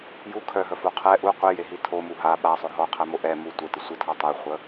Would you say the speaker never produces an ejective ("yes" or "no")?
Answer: yes